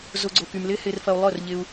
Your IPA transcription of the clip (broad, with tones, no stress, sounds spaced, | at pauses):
z ʊ˦ ɡ͡ǀ ʊ˧ k y˧ m l ɪ˦ h ɪ˧ r f ɐ˧ u̯ lˠ œ˦˨ r ʎ ɪ˧ u̯